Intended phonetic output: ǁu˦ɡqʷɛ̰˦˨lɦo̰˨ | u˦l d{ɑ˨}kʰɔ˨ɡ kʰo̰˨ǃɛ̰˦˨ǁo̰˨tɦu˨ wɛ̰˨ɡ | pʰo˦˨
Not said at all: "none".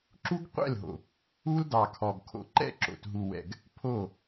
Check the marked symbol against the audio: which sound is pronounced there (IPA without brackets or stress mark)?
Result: ɑ˨